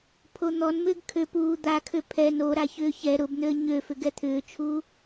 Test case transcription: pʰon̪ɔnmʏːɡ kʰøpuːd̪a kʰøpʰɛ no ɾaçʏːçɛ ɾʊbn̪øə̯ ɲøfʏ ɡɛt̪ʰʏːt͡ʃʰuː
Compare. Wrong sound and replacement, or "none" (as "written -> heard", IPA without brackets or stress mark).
none